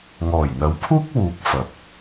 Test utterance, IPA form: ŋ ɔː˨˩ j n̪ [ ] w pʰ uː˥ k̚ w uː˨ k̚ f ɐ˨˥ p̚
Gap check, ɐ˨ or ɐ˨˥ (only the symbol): ɐ˨˥